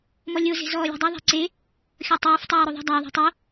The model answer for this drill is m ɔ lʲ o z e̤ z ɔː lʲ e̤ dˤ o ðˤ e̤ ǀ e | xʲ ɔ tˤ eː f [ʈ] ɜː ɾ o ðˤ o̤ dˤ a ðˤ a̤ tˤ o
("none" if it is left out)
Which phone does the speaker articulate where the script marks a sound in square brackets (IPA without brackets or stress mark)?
tˤ